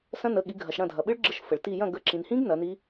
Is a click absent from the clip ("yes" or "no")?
no